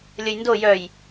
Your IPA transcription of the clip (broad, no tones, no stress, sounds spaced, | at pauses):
lʲ ə j n d o j œ j